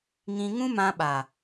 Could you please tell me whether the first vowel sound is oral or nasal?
nasal